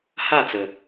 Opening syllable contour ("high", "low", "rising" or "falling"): falling